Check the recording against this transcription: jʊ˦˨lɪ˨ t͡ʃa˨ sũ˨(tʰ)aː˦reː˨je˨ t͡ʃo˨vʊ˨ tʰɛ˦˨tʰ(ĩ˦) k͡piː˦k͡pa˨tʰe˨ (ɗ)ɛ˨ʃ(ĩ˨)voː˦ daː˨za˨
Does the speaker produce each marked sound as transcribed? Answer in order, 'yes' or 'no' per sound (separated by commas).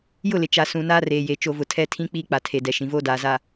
no, yes, no, yes